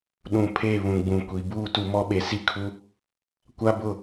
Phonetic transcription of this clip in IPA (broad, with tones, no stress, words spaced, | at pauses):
ɗũ˨pʰe˦˨ βũ˨ɡ͡bũ˨kʷi˨ buː˦˨tu˨mɔ˦ɓe˨ si˦kʰu˦ | kʷa˦bʊ˦˨